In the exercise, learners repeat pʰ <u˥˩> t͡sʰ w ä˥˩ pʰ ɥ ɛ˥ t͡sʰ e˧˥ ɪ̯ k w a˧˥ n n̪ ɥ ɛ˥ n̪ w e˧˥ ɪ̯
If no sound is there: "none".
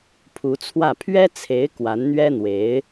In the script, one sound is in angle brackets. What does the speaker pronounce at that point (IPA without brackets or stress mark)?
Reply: u˧˥